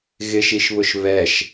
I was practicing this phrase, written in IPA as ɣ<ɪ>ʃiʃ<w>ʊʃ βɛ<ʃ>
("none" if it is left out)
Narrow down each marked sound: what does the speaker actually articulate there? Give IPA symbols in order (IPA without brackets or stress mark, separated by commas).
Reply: ɪ, β, ʃ